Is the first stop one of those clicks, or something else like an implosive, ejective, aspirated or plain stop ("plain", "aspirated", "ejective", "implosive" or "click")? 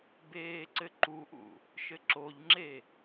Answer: plain